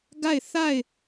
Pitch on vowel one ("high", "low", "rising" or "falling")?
falling